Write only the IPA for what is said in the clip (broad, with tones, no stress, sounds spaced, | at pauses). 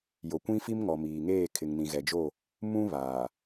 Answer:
j o˨ kʷ ĩ˦ f i˦ m ŋ ɔ˨ m iː˨ ŋ eː˦˨ kʰ ɪ˨ ŋ n ĩ˨ ɣ ɛ˨ d͡ʒ o˦˨ | m ũ˦ β aː˨